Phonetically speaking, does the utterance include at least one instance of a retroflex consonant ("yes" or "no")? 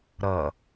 no